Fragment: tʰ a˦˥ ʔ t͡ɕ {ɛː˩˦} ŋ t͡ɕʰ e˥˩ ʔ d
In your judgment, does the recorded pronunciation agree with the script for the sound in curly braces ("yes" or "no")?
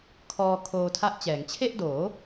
yes